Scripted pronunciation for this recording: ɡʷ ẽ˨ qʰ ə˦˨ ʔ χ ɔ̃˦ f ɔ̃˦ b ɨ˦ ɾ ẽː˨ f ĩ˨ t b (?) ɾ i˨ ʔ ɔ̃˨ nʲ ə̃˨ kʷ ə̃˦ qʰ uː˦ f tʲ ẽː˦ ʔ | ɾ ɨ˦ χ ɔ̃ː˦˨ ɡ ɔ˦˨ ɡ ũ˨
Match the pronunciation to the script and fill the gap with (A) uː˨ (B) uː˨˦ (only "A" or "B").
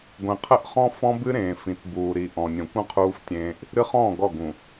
A